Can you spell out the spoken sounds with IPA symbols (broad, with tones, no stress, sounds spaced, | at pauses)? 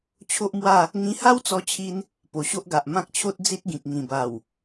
t͡ɕʰ o˦ ʔ m w a˥˧ | ŋ ĩ˧ h a˦ w t͡s ɔ˧ t͡ɕʰ i˧ n | p o˨˩ ɕ o˦ ʔ ɡ a˨ ʔ m ã˦ k̚ t͡ɕʰ o˦ t̚ d͡z i˦ t̚ ɡ ĩ˨ k̚ ŋ ĩ˨˩ b a˨˩ w